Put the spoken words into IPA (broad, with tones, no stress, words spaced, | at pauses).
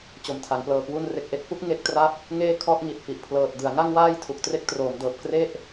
t͡ɕo˨˩mtʰa˩˦ŋplɤː˨˩ kwu˧nre˨˩k̚ʔe˥˩k̚pu˦˥k̚ ŋe˦˥k̚tra˦˥p̚ | ŋeː˥˩kʰɔ˥˩ʔ ŋi˨˩t̚fi˨˩ʔpʰlɤː˨˩t̚ dɯ˩˦a̯ŋa˥˩ŋwaː˥˩j tʰu˨˩k̚tre˥˩k̚troː˩˦mdɤː˨˩p̚ kre˥˩ʔ